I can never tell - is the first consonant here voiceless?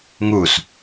no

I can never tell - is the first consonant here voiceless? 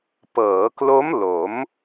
yes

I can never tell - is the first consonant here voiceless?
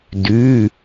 no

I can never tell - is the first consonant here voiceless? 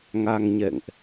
no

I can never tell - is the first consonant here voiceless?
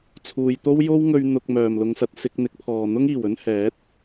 yes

